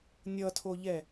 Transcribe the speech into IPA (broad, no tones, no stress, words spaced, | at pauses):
nʲʌtʰoʎɛ